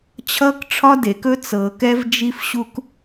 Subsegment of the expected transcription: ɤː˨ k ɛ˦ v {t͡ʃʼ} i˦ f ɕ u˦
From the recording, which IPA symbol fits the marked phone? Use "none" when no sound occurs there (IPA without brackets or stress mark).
d͡ʒ